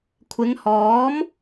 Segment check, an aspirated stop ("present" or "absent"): present